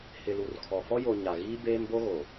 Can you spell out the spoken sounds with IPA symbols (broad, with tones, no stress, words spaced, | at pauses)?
hɪ˨lu˨rkʰɔ˨ fɔ˦jo˨ ɲa˨ɣiː˦ beː˦mbo˦ ɣo˨